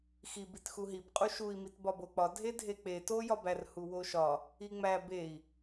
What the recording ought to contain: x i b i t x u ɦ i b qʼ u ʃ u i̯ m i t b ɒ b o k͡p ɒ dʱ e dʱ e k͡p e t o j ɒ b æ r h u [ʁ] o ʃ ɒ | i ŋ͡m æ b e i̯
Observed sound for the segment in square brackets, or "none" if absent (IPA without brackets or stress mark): w